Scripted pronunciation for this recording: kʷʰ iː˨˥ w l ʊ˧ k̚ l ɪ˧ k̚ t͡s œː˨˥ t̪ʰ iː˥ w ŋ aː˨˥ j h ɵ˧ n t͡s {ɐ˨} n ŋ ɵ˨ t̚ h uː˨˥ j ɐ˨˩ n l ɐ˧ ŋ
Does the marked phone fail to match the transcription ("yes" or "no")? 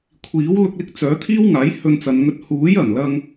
no